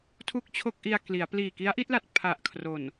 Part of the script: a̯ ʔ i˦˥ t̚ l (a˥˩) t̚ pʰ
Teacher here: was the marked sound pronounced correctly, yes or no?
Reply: no